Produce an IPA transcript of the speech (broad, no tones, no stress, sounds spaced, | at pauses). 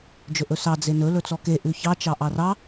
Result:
d͡ʒ ɵ ʔ ɵ s ɑ d͡z e n ɵ l ɵ t͡s ɔ k e ʔ ʉ ç ɑ t͡ʃ ɑ ʔ ɑ r ɑ